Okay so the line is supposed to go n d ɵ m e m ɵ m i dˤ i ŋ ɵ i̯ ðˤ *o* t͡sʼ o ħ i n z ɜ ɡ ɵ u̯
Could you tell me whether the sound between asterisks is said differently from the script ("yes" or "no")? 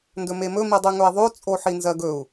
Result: no